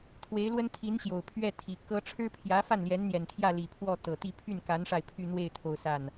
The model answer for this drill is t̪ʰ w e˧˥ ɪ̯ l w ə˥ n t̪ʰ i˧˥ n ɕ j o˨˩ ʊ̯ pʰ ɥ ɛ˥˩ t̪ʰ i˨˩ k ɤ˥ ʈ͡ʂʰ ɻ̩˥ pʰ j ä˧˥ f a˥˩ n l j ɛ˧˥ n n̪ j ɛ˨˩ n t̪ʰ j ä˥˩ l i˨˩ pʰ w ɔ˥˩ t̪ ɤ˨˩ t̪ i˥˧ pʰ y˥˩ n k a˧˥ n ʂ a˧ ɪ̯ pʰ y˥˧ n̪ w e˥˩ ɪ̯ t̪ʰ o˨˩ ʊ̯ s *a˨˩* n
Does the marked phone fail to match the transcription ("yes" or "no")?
yes